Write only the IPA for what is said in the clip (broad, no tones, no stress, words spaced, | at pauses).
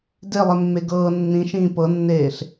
delˠemːe ɡɤː nːĩʃĩː pɤnːeːɬ